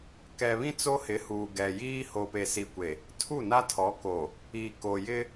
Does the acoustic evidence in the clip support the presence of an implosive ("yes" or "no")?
no